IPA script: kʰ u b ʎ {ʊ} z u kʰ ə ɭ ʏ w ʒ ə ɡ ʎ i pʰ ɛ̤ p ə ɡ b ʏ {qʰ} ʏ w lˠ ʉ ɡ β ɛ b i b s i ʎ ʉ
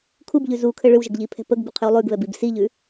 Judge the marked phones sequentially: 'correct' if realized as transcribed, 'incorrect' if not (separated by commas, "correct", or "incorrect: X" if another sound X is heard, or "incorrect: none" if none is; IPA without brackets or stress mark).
incorrect: ʉ, correct